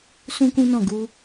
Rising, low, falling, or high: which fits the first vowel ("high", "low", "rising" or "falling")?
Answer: high